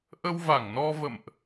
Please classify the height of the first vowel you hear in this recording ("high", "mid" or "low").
mid